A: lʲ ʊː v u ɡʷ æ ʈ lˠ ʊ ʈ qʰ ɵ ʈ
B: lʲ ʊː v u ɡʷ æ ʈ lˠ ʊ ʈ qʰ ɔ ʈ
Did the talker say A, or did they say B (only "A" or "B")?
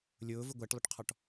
B